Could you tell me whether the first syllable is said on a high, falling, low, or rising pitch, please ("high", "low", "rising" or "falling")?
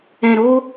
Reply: low